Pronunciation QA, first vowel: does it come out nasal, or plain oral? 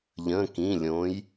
nasal